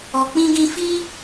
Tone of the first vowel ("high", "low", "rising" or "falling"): low